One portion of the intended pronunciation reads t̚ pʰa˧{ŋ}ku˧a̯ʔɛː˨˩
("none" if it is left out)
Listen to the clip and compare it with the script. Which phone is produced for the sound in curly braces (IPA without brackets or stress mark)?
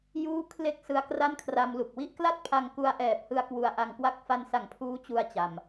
ŋ